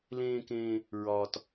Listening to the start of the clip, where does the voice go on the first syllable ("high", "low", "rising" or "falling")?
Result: high